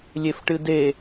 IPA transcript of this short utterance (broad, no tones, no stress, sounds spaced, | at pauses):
lʲ e f ʈ ɨ d e